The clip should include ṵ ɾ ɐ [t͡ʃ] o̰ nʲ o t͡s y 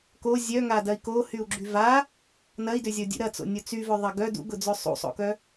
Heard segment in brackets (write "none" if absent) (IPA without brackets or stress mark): t͡s